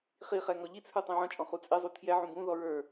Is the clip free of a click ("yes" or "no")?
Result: yes